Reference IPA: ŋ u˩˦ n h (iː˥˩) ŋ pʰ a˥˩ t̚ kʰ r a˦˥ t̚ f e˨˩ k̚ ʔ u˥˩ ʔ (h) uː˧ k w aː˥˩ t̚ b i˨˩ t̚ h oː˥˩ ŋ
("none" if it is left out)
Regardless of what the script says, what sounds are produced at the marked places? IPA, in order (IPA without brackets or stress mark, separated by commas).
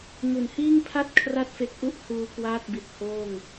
iː˥˩, h